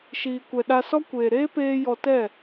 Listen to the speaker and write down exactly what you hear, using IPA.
ʃ iː˨ kʷ ɛ˨ ɗ a˧ s ɔ˦ kʷ eː˨ ɾ eː˦ p eː˧ j ɔ˧ t ɛ˦˨

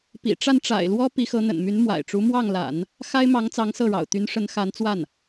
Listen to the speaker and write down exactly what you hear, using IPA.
p ḭ˨˩ ʈ͡ʂ a˥˩ n ʈ͡ʂ a̰˨˩ ɪ̯ l w ɔ˥ p i˧˥ x ɤ˧˥ n̪ ə̰˨˩ n m y˧˥ n m w a̰˨˩ ɪ̯ ʈ͡ʂ u˧˥ m w ɑ˥˩ ŋ l a̰˨˩˦ n | x a˥ ɪ̯ m ɑ˧˥ ŋ t͡s ɑ˧˥ ŋ s ɤ˥˩ ɻ ɑ̰˨˩ ʊ̯ t̪ y˧˥ n ʂ ə˧˥ n x a˧˥ n t͡s w a˥˩ n

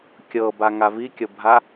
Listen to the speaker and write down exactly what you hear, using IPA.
kʲ ɤ b a ŋ a v i kʲ ɤ bʱ a

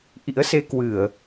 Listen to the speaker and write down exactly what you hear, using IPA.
ʔ ḭ˧˥ ə̯ s e˧ k w ɨ˧˩˨ ə̯

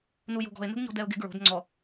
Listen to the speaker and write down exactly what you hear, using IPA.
n u j o̤ ɡ ɔ̤ ɪ̯ n ə̤ ɡ ɲ ɔ̤ d ɛ ʊ̯ ɡ ɪ ɡ ɹ o̤ d ŋ͡ǀ ɔ

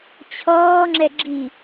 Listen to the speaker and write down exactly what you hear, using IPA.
t͡ɕʰ ɔː ŋ͡ǁ ɛ ɡ͡ǁ i

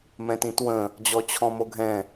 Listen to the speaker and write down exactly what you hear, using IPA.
m ɛ̃ t ĩ t w ə̃ | d͡ʑ ɔ t͡ɕʰ ɔ̃ m o ɡʱ ɛ̃

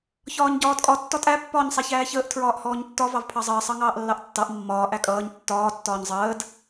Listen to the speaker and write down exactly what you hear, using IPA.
ç ɒː ɲ ɟ ɒː d kʼ ɒ tː ɒ tʼ æ pː ɒː ɲ sˤ æ ç æː ç əː ʔ tʰ ɹ ɒː ʔ h ɔː ɲ tː ɒ v ɑ v pʰ ɑ zˤ əː sˤ ɑ ŋ ɑː ʔ lː ɑ ʔ tː ɑ ʔ mː ɒː ʔ æ kʼ ʌː ɲ tː ɒː tː ɒː ɲ zˤ əː d

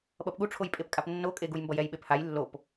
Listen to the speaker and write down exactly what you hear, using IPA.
ɓ ʌ p ɠ u ʈ͡ʂʰ o j pʼ e p kʼ a p nː o kʼ e ɡ u j m b ʌ j ɛ j ɓ e p h a j lː o p

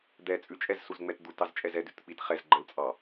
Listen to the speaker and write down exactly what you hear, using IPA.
d̪ ɛ t͡sʼ ʉ t͡ʃʼ ɛ z s u z ŋ͡m ɛ t d̪ u t ɑ z t͡ʃʼ ɛ z ɛ d ʉ t k͡p i t χ ɛ z ɡ͡ǃ ə l t͡sʼ ɑ

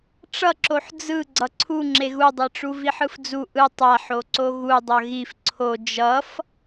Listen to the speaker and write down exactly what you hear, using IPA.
ʈ͡ʂ ʌ ǁ o ħ d͡z ɯ ɡ͡ǀ ʌ ǀʰ u ŋ͡ǁ e ɣ u dˤ e ʈ͡ʂ u v i ħ ɯ f d͡z u ʔ ɯ tˤ a ħ o ǀ o ɣ u dˤ ʌ ɣ i f ǀʰ o d͡ʒ ʌ f

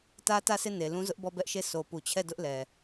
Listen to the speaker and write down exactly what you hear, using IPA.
t ä˦ t ä˦˨ s e˦˨ n e˨ l ũ˦ z ʊ˦ ʔ b ɔ˦˨ b ɛ˦ ʔ ʃ e˦˨ s o˨ p u˨ t͡ɕʰ ɛ˦˨ d ʊ˦ ʔ l ɛ˨

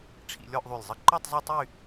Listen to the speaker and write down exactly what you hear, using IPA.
ʈ͡ʂʰ ḭ˧ lʲ ɔ˥˧ ʔ ðˤ y˧˩ lʲ zˤ ə˥ ǃ ɔ˥˧ tˤ zˤ e˥˧ tˤ y˥˧

